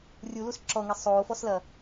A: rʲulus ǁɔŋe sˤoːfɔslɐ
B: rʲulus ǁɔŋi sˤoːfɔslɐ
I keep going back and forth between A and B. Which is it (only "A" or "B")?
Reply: A